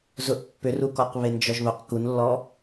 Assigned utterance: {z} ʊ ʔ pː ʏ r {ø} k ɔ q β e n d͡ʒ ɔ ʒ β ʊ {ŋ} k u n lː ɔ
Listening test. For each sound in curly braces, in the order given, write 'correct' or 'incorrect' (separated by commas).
correct, incorrect, incorrect